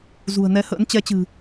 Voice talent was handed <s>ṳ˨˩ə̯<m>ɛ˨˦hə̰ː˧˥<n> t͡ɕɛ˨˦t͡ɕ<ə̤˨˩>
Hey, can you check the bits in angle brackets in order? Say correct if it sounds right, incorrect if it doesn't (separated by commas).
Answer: incorrect, incorrect, correct, incorrect